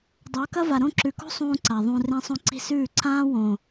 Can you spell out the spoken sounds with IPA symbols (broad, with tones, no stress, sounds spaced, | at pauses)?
dˤ ɵː˨˦ k ɐ˦ v a˨ ɾ õ˦˨ ǁ ʉ˨ k o̤˦ sˤ ũː˦ ǀ a˨ ðˤ ũ˨ r ẽ˦ sˤ õ˦ ǀ i̤˦ s ʉː˦˨ ǀ ãː˦ w õ˨